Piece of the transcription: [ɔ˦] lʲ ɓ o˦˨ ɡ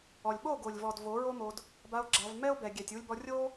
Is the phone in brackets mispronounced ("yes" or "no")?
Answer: yes